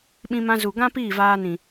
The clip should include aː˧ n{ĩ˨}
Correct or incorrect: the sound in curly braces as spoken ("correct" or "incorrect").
correct